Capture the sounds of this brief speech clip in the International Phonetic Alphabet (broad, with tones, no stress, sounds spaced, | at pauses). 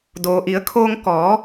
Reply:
d oː˩ ʔ i˩˧ ə̯ kʰ oː˧ ŋ k ɔː˩˧